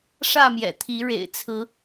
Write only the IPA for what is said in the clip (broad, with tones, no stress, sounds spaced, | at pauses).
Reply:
ʂ ä˥˨ m j ɛ̰˨˩ t̪ʰ i˨˦ ɻ ḛ˨˩ ɪ̯ t͡sʰ ɹ̩˨˦